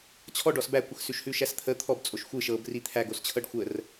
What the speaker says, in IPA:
t͡ɕʰ ɔ ɖ ɔ s b æ kʷ ə x s ʉ ʃ h ʉ ʃ æ s t̪ʰ ə t̪ʰ ɔ b t͡sʼ o ʃ xʷ ɨ ʃ ɤ b r i t̪ʰ æ ɡ o s t͡ɕʰ ɤ ɖ xʷ ə r

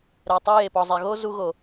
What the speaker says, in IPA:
ɾ ɛ˨ tˤ i˧ j e˨ p ɔ˨ zˤ e˨ ɣ o˦ z u˧ ɣ o˨

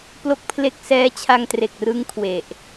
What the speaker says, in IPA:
p l o˥˩ k̚ pʰ l e˥˩ k̚ s ɛː˦˥ t͡ɕʰ a˧ ŋ t r e˨˩ k̚ r ɯ˦˥ ŋ kʰ w e˨˩ ʔ

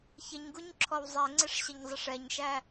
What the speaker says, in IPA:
ç ə ɲ ɡ u ɲ ǁʰ ɔ w zˤ ɛ ŋ͡ǀ ɪ ʂ ɕ ə ɲ zˤ ə ʂ ɛ ɲ ʃ æ

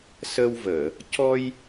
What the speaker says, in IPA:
s ə˧ w v əː˨˩˨ | c ɔ˧ j

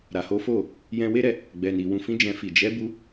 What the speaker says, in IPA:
ɾ a˨ h o˨˦ f o˦˨ | j ɛ̃˧ w e˦ ɾ ɛ˧ | ɡ͡b ɛ˨ n i˨ w ũ˨ f ĩ˧ d͡ʒ ɛ̃˧ f i˨ d͡ʒ ɛ˨˦ b u˧

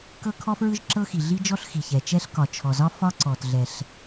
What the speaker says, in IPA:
k ɤ˥ kʰ ɔ˥ f ɹ ɯ˥ ʒ ǁ ɤ˥ x i˩ ɮ i˥ d͡ʒ ɔ˥ ɬ x i˩ ç ɛ˩ t͡ʃ ɛ˥ ɬ k ɒ˩ t͡ʃʰ ɔ˩ z ɒ˥ f ɒ˥ ǀ ɔ˩ t ɮ ɛ˩ ɬ

